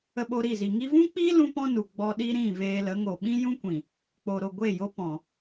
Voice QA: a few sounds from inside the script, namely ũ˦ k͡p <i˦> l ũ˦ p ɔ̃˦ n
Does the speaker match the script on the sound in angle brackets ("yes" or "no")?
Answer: yes